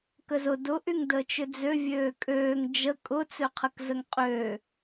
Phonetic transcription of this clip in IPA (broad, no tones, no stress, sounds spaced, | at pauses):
k ə z ʊ d ʊ ʔ y ŋ d əː t͡ʃ ʏ d͡z ø vʲ øː kʼ øː ŋ d͡ʒ ə kʼ ʊ t͡s ø qʰ ə k z ə ŋ qʼ øː